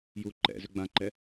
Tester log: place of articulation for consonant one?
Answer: palatal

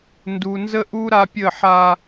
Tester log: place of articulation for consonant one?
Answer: alveolar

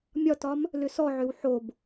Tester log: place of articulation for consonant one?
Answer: labial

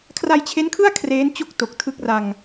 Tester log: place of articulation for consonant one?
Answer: velar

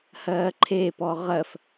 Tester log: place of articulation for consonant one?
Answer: glottal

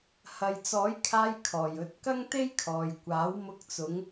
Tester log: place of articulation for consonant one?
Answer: glottal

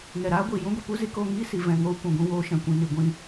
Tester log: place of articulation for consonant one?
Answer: velar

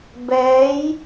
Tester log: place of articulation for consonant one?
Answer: labial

